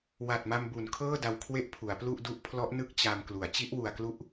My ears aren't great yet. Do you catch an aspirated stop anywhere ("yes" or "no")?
yes